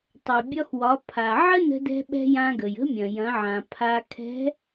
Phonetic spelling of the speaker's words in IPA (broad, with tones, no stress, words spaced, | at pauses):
tˤɛ˩bʲɒ˧xwɒ˩˧ pʰa˩ʕə˥nə̤˧dɛ̤˧ ɓɛ̤˧ jã˧ɡə˩j ə̤˧˥mʲɐ̃˩jɐ̃˩˧ʕã˩ pʰa˧kʰɛ̤˧˥